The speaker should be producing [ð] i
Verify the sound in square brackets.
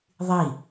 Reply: incorrect: ðˤ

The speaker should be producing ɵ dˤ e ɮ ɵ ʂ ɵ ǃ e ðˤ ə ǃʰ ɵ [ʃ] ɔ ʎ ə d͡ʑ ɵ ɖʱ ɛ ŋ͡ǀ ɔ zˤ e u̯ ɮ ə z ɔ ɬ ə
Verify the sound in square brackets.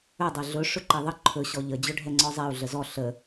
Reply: incorrect: ɕ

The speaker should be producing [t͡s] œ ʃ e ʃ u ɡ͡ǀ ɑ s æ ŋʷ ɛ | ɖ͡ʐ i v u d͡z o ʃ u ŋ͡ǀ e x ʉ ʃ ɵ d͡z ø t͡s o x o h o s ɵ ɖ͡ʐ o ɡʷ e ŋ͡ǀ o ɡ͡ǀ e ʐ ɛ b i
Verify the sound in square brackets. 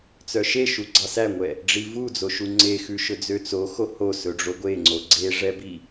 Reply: correct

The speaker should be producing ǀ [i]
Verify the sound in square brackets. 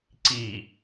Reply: correct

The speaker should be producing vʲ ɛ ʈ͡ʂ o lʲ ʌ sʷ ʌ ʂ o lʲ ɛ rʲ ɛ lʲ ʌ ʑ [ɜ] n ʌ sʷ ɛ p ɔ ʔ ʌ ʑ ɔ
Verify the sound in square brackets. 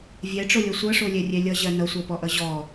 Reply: correct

